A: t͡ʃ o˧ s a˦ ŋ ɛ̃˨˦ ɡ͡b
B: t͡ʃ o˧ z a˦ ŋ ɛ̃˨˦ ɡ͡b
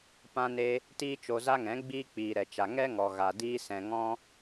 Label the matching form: B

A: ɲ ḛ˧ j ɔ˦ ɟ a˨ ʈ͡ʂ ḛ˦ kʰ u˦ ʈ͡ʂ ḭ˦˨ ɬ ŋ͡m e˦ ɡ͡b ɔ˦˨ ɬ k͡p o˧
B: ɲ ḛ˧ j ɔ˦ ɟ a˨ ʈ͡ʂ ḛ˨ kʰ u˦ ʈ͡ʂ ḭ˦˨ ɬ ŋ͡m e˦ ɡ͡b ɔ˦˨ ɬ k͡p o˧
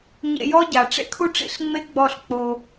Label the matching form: A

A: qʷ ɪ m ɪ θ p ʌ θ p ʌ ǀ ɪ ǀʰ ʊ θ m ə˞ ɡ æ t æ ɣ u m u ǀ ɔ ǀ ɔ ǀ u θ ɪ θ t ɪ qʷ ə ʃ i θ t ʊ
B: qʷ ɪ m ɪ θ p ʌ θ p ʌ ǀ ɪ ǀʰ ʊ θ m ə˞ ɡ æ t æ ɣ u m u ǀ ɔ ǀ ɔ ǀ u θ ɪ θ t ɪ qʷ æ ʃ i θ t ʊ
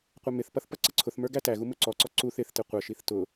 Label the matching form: A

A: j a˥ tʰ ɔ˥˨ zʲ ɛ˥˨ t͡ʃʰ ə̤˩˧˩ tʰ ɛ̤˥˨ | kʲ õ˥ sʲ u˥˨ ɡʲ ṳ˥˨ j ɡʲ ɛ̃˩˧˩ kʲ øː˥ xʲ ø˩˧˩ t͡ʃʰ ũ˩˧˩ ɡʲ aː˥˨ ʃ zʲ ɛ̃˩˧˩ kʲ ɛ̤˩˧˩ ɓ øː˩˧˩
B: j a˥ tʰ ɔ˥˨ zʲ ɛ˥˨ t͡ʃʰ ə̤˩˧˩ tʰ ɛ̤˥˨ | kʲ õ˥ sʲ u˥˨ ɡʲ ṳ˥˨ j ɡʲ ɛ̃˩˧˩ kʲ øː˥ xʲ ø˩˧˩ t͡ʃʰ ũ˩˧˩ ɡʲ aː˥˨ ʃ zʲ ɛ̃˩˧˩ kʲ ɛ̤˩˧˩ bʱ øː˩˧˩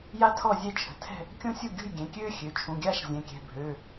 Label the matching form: B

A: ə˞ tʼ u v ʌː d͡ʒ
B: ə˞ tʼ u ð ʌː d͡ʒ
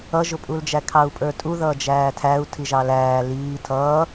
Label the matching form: B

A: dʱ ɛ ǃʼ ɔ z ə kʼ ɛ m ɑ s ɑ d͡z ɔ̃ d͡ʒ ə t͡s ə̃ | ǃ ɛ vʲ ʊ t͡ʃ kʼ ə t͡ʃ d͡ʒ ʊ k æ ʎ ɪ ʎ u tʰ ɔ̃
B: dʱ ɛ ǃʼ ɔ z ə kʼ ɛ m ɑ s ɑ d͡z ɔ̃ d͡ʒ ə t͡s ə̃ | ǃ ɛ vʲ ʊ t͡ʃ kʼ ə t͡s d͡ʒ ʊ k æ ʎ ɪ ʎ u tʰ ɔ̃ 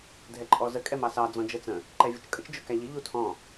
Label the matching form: A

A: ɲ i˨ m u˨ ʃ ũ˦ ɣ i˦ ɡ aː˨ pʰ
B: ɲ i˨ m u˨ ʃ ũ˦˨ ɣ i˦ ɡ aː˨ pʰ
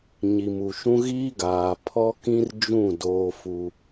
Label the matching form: A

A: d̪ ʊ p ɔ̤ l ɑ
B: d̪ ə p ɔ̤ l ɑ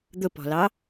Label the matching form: A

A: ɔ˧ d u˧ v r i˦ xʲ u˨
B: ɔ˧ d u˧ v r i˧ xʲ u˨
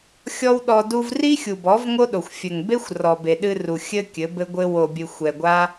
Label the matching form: A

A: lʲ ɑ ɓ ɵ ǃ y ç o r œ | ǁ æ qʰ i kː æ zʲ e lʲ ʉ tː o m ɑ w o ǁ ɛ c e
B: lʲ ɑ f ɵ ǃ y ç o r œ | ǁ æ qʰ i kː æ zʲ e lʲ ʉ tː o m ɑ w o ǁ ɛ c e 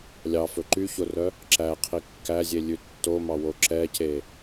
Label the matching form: B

